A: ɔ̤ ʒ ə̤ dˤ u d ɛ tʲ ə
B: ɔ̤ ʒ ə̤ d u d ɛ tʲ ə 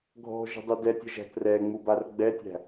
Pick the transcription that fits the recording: A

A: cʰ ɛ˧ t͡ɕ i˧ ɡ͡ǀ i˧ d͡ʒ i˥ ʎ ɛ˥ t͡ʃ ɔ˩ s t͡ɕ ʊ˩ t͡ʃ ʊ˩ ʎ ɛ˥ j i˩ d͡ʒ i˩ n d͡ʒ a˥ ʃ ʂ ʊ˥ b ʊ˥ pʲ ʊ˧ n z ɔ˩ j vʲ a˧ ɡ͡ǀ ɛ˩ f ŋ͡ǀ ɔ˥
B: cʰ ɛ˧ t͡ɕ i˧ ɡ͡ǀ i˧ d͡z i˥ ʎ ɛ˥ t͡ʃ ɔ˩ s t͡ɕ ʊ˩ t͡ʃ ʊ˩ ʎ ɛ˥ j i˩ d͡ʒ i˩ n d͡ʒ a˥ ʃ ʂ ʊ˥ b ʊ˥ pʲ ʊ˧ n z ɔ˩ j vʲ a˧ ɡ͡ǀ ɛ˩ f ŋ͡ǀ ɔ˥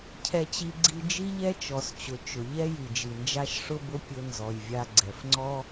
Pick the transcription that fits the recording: A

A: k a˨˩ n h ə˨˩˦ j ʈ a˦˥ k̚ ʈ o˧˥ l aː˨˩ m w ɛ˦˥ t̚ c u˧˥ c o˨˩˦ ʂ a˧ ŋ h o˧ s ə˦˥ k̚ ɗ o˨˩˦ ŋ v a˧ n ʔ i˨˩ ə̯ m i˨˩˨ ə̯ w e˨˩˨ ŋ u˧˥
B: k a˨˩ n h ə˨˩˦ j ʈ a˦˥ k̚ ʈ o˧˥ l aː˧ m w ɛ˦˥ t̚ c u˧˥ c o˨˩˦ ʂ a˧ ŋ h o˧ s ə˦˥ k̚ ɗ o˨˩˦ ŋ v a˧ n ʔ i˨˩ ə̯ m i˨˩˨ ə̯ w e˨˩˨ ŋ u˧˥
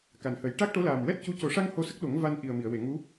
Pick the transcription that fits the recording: A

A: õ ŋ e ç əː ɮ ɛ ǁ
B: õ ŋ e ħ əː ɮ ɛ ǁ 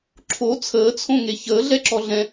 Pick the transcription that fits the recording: A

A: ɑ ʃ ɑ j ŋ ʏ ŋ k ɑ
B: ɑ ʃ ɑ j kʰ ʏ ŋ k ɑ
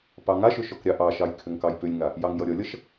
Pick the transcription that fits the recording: B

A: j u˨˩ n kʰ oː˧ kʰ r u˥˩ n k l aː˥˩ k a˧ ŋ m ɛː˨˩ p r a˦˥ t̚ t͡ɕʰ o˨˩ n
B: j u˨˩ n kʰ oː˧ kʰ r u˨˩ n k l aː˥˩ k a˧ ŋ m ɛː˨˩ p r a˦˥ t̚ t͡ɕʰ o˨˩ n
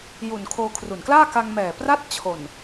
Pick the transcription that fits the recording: B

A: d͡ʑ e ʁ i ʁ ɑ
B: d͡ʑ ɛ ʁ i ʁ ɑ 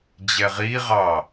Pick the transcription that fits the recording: B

